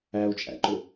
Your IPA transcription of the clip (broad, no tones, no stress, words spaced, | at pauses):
æu̯t͡ʃʼæ̰ǃʊ